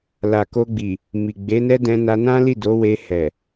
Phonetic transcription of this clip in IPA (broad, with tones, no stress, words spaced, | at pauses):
la˨ko˧ɡ͡bi˨ | mi˨ ɡ͡be˨˦nɛ˦dɛ̃˧na˧ nã˦li˦˨ do˨˦we˧ hɛ˨